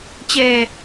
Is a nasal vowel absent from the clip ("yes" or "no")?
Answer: yes